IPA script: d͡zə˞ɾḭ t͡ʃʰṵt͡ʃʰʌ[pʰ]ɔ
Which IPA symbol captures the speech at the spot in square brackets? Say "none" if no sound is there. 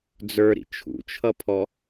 pʰ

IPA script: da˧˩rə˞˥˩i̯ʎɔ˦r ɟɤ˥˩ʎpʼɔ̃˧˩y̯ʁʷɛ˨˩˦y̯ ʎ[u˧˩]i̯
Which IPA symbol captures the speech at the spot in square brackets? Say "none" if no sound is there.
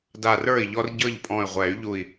u˧˩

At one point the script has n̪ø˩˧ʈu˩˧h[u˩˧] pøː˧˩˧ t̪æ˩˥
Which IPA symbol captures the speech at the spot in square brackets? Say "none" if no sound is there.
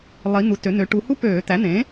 u˦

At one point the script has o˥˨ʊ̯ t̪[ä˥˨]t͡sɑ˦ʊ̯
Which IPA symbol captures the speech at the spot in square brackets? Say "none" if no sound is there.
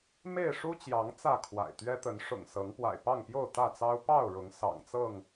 ä˥˨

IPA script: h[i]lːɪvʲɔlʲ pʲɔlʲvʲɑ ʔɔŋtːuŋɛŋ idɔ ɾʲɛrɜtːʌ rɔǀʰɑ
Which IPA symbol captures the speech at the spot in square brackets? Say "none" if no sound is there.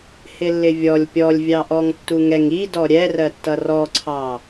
ɪ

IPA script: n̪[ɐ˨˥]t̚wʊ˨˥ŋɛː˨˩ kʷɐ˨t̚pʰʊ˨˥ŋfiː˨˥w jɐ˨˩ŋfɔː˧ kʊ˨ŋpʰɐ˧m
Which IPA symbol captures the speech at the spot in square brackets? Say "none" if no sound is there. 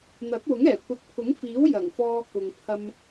ɐ˨˥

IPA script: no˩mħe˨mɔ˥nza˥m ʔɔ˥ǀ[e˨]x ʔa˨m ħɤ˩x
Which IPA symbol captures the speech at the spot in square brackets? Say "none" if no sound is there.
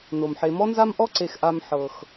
e˨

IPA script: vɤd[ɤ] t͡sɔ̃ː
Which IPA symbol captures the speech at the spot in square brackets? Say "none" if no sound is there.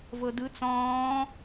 ɯ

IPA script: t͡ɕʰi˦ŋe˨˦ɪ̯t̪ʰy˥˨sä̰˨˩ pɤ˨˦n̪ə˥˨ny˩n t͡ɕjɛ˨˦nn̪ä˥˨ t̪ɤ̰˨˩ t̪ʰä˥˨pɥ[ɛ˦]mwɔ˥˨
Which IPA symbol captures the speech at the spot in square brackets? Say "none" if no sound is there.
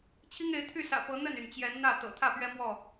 ɛ˦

